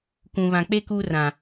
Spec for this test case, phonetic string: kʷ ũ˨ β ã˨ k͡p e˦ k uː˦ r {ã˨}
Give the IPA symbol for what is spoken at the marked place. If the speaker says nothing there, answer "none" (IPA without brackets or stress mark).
ã˨